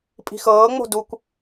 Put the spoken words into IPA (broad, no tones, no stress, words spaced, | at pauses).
pʼi̤xɤːŋ͡mo̤ dukʷ